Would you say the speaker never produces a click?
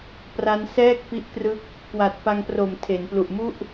yes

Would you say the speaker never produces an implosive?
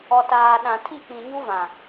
no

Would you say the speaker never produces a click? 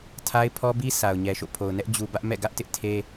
yes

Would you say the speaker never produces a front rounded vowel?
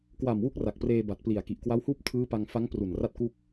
yes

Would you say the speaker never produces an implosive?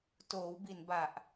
yes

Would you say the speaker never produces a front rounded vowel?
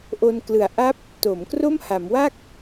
yes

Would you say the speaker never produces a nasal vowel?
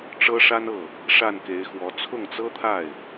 yes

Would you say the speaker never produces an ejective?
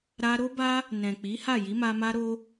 yes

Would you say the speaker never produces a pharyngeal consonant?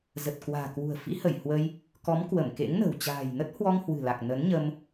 yes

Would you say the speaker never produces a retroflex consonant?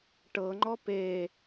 no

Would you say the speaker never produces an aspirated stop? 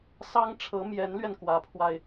no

